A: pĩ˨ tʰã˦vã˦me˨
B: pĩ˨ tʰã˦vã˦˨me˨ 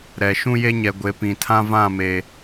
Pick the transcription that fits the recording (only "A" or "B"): B